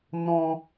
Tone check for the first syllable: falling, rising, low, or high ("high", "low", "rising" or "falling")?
high